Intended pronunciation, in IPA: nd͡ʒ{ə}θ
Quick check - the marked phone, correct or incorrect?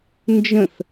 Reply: incorrect